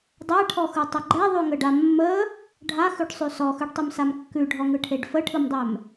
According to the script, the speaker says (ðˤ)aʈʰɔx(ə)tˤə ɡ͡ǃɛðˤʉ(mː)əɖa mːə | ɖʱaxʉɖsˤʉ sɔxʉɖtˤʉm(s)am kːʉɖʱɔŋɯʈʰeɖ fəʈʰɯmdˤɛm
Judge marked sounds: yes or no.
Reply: no, no, no, yes

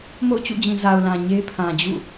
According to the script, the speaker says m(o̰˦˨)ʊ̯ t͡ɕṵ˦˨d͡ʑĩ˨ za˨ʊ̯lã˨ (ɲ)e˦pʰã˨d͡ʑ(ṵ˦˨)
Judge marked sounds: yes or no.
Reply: yes, yes, yes

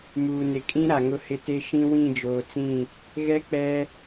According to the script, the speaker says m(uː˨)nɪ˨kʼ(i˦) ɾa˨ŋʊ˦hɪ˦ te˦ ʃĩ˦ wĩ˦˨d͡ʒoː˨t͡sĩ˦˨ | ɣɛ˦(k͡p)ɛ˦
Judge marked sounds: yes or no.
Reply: yes, no, yes

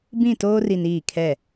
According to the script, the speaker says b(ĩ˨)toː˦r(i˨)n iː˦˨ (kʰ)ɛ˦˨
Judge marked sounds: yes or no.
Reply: no, yes, yes

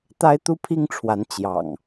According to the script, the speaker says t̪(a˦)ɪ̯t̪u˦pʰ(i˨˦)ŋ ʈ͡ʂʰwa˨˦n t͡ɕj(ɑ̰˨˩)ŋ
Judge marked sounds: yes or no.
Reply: yes, no, yes

